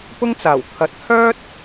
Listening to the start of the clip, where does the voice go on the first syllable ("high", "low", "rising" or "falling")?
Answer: high